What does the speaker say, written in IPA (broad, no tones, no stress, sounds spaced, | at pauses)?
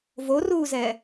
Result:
v o r uː z ɛː